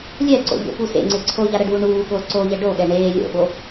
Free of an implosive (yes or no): no